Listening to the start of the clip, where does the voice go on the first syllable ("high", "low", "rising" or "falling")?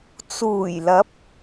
low